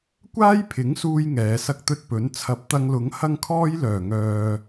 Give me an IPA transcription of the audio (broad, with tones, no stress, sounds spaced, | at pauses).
kʷ aː˥ j pʰ ɪ˨˥ ŋ s uː˧ j ŋ ɛː˨˧ s ɐ˥ k̚ t̪ ɵ˥ t̚ p ɵ˨˥ n t͡sʰ ɐ˨˥ p̚ t̪ ɐ˧ ŋ l ʊ˨˥ ŋ h ɐ˥ ŋ kʰ ɔː˥ j l œː˨˩ ŋ œː˨